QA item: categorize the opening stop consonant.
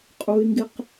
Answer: ejective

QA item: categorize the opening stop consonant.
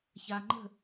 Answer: click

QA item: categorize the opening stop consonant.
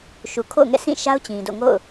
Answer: aspirated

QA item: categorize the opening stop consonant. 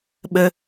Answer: implosive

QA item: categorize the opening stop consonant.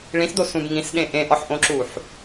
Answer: plain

